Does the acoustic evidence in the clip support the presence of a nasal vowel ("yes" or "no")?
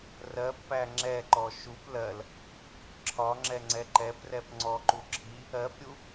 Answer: no